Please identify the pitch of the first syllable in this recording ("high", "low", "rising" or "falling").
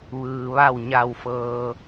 low